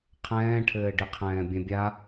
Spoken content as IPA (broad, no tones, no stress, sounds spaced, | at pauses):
qʰ ɛ̃ː ʈʰ ɘː ɖ i qʰ ɛ̃ː bʲ ɛ̃ bʲ a